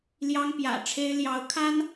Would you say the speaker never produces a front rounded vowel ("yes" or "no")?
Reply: yes